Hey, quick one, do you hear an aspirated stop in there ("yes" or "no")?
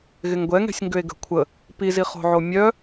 yes